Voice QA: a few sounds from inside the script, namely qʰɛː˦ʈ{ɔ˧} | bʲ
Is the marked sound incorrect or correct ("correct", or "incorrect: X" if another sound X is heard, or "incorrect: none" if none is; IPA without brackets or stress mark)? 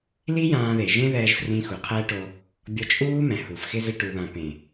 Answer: incorrect: o˧